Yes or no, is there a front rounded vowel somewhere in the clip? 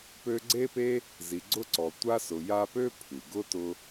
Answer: yes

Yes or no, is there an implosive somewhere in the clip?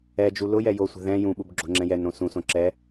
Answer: yes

